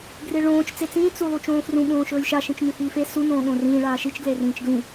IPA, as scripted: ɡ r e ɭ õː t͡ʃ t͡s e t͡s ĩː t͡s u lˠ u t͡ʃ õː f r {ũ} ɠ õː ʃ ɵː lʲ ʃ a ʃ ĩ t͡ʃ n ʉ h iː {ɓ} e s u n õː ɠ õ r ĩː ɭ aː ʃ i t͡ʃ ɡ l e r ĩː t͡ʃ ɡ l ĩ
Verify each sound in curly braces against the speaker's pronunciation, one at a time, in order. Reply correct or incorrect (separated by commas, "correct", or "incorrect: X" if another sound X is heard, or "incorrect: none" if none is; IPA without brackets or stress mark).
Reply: correct, incorrect: f